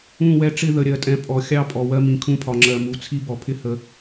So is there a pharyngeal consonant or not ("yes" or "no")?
no